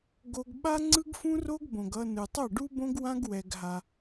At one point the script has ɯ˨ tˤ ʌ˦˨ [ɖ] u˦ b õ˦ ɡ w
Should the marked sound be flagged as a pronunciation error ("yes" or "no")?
no